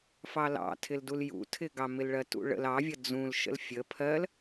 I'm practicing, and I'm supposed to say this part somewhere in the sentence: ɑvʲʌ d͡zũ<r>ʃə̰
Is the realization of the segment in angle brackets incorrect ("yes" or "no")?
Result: yes